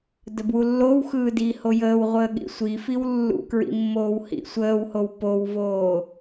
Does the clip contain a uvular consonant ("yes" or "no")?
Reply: yes